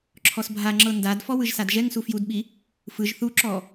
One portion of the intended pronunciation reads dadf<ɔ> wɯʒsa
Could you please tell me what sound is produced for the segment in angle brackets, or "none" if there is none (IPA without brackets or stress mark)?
ɔ